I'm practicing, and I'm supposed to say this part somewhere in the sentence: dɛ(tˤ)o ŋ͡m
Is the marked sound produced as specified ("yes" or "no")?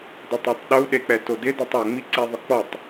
yes